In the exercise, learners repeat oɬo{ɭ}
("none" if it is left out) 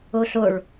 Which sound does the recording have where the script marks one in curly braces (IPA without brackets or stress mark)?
ɭ